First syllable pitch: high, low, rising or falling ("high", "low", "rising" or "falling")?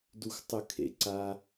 low